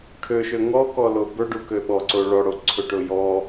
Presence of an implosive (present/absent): present